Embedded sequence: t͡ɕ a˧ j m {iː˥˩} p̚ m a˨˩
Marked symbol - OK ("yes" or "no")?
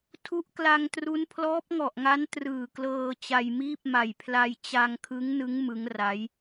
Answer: yes